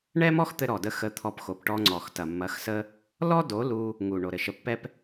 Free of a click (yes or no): no